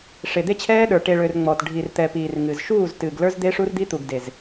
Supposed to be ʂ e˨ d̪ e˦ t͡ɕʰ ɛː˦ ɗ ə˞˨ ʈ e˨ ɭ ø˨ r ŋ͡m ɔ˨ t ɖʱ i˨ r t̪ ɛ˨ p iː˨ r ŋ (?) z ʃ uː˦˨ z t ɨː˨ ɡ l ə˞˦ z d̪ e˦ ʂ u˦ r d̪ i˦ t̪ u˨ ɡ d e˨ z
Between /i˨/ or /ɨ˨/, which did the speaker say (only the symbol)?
ɨ˨